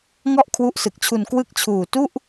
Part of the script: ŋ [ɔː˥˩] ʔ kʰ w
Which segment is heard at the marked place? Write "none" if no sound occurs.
ɔ˥˩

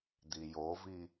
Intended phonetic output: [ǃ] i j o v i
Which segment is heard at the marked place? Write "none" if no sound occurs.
d̪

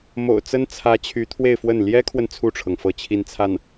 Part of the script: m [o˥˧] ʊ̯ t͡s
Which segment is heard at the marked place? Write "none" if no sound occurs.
o̰˨˩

